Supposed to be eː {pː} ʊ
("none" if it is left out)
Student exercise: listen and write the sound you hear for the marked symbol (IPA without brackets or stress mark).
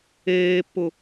pː